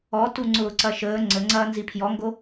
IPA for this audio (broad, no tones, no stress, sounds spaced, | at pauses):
ɔ t u ŋ͡ǀ ʊː ǀ ɐ ʃ əː ŋ͡ǀ ə ŋ͡ǀ ɐː n z i pʰ j ɔ ŋ ɡ o